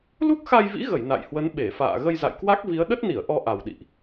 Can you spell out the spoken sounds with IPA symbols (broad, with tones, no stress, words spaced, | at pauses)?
lu˦˥k̚xa˧jvḭ˧˥ ɣə˧˩j na̰˧˨jhwə˨˦n ɓe˧˩fa̰ː˧˨ ɣə˧jza̰˧˨jkwa˦˥k̚vi˨˦ə̯ ɗə˦˥t̚ni˧˩ə̯ ʔɔ˧ʔa˨˩wɗḭ˧˨ʔ